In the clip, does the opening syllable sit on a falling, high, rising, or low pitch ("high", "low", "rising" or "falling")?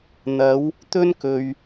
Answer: rising